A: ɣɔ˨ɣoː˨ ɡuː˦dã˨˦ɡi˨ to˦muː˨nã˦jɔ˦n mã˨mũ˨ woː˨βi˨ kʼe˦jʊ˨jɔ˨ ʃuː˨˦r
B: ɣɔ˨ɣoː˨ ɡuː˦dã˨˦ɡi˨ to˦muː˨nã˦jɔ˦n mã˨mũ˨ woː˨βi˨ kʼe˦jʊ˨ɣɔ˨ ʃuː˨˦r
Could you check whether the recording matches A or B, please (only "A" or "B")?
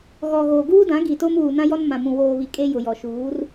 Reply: A